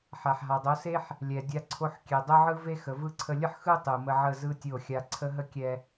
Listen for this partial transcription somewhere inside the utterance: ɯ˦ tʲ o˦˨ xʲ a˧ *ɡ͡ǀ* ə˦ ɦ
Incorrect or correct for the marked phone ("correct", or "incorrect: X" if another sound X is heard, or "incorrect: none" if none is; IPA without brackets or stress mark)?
incorrect: ǀʰ